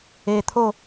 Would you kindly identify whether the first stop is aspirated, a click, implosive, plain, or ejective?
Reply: aspirated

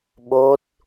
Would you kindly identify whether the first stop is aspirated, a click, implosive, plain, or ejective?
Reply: implosive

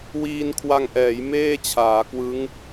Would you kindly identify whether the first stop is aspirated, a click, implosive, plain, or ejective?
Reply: aspirated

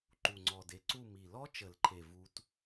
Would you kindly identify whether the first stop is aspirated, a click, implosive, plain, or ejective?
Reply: click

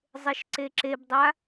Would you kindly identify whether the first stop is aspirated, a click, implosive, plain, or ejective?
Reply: click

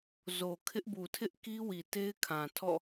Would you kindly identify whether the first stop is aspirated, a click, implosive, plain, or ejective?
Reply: aspirated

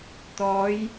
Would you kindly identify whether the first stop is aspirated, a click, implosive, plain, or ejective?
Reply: plain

